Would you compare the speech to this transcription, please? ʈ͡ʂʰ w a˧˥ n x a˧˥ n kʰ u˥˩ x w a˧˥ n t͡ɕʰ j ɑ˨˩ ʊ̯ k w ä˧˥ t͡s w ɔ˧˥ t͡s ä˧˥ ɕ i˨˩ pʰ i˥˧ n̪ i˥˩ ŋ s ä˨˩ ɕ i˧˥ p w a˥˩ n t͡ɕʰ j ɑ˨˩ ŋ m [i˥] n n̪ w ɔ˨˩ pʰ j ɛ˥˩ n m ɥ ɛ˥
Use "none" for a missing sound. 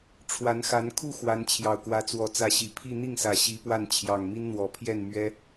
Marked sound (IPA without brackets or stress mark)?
i˥